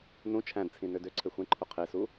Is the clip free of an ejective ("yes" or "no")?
yes